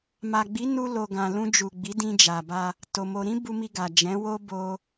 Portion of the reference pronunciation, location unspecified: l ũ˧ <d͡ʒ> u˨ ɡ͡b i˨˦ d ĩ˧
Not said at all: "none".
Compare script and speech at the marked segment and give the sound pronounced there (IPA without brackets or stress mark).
d͡ʒ